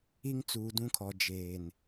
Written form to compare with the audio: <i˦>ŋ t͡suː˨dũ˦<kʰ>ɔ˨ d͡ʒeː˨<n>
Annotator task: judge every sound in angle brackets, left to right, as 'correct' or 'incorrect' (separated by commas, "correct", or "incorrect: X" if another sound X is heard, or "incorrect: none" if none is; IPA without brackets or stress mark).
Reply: correct, correct, correct